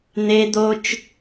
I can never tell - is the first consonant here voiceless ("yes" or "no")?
no